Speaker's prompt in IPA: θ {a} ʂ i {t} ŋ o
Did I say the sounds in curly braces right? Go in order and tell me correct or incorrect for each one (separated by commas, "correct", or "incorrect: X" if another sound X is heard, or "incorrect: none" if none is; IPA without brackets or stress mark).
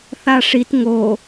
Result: correct, correct